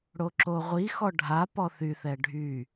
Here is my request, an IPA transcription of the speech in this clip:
ɽoǁoʁʷixɔ ɖʱa pɔθyθɛ ɖʱy

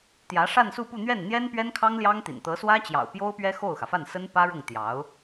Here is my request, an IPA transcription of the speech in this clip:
t̪jä˧˥ʂa˥˧nsu˥˧pu˥˧ n̪ɥɛ˥˩n n̪jɛ˥npɥɛ˥nkʰɑ˥ŋ ljɑ˥ŋt̪ḭ˨˩n t̪ɤ˧˥swä˥t͡ɕjɑ̰˨˩ʊ̯ pjo˥ʊ̯pɥɛ˥ xo˥˩ʊ̯xä˩fa˥˩nsə˥n pä˥ɻʊ˥˩ŋ t̪jɑ˧˥ʊ̯

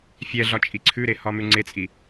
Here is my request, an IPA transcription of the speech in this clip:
fʲɛɮɒ t͡ʃʼiǀʰʉɾe hɒmʉŋ͡ǀet͡sʼi

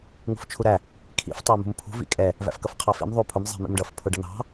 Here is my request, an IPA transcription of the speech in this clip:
ŋṳft͡ʃʰuɾæ | kʰḭf tˤæmṳmpʰṳ vḭkʼɛ | væ̰fkʌfqʰɑfḭm ðˤupʰʊm zˤɛ̤mḭmɖʌf pʰʊɖʌn̪ɑ̤

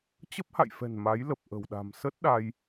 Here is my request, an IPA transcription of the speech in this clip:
t͡ɕə˦˥p̚ha̰˧˨jfɛ̤˨˩n ma˨˦jlə˨˩p̚ ʔə̤˨˩wɗa̤˨˩m sə˦˥t̚ ɗa˧j

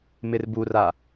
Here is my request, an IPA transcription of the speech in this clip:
mɪrbura

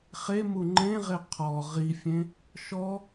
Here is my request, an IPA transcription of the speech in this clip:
χemu ŋ͡ǃẽʁe qʰɔ ʁifʲẽ | ʃɔ

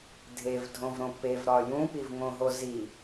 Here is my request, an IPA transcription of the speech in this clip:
dʱevdʱõvɾõ pevɾɒ jũpivŋõɦo zi

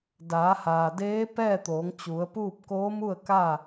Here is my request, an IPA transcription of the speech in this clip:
daː˩˧haː˩deː˧˥ pɛː˥˨t̪oː˩˧ŋt͡ɕu˩˧ə̯puː˥˨p̚ koː˧˥mu˥˨ə̯ka˥˨

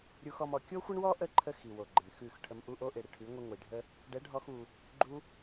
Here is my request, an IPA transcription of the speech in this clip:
ɾʲu˧xɔ˧m ɔ˨ kʲo˦xʷə˦ɳwɔ˦ ʔə˦˨ǃʰə˧ xi˨wo˨ɡ͡ǃɪ˨m xʉ˦˨x ʈʰə˧mʔu˦ ʔo˧ʔɪ˨ɽɪ˨ ʈʰʉ˨˦ŋʷɪ˧ŋʷi˨ɖʱə˦ | ɖɛ˨˦ɖʱɔ˧x u˧ | ɡ͡ǃu˧

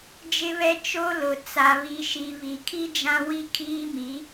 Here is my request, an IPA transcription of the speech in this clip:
d͡ʒɪ˦βɛ˦ t͡ʃo˦ lʊ˨ t͡sa˨βi˨ʃi˨ βi˨kʰi˦ d͡ʒã˦wi˦kʰiː˦mi˨˦

